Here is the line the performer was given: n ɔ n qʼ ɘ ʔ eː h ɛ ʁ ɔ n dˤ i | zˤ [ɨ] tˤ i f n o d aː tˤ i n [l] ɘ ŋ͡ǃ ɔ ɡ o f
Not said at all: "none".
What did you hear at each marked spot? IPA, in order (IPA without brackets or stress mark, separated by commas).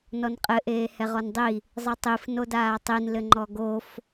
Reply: ɨ, l